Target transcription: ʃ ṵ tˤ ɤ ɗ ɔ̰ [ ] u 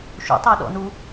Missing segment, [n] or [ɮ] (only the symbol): n